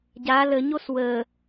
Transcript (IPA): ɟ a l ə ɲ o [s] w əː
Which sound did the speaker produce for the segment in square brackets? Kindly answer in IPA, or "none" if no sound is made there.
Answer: s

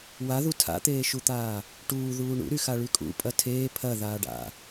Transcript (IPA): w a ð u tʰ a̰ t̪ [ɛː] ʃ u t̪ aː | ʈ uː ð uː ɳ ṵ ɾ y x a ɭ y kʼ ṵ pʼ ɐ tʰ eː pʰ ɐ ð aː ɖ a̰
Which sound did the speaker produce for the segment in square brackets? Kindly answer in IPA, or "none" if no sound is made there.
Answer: eː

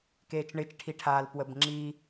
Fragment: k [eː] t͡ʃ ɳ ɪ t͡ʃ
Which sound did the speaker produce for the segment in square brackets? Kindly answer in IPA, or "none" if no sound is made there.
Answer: eː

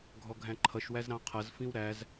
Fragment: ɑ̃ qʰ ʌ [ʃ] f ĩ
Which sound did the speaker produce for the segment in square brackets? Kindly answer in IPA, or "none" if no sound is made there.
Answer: z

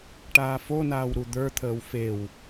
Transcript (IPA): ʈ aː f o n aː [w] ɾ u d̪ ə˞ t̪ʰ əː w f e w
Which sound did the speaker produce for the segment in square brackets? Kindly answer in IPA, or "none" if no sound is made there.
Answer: w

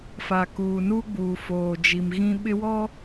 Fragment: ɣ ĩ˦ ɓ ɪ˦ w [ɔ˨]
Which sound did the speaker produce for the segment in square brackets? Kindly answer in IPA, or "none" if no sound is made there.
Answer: ɔ˦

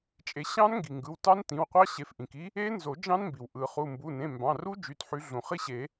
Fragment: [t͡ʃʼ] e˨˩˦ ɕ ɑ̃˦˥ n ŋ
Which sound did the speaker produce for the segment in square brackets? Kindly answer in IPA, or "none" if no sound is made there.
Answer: t͡ʃʼ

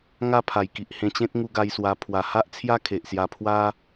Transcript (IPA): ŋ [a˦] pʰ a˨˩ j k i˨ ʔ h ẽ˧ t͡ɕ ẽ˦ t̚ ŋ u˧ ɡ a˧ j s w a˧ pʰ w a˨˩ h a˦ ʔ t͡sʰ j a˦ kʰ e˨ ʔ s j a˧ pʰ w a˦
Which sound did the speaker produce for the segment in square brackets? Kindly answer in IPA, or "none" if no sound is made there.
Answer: a˦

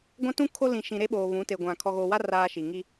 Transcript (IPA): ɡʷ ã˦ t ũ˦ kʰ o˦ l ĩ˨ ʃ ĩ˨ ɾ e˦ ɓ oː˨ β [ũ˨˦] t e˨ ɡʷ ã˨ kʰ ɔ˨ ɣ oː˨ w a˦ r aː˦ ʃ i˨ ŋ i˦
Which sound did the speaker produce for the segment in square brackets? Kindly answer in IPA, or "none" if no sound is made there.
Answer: ũ˨˦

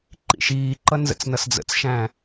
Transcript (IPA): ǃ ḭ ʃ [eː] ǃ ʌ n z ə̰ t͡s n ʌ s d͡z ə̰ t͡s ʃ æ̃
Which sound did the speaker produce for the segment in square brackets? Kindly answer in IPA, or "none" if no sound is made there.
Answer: iː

